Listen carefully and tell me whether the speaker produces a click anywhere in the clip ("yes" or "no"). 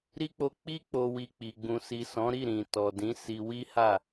no